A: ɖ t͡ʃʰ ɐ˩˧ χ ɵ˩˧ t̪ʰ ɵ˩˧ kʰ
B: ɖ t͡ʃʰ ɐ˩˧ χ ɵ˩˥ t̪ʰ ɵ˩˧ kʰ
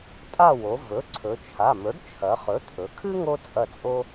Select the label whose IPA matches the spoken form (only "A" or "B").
B